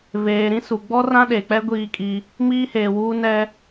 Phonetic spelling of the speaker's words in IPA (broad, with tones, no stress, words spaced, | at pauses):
veː˨ɾĩ˦ su˨ɡ͡bɔ˦ rã˦ɗe˨k͡pɛ˦ ɡʷiː˦kʼi˦ | miː˦heː˨wuː˦ nɛ˦